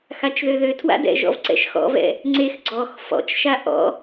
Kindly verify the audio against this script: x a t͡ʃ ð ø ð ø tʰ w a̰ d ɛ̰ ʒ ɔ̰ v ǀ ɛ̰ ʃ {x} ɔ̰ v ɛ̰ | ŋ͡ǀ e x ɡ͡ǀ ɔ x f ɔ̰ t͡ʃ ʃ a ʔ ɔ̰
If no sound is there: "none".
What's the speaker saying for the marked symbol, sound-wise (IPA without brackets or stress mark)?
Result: x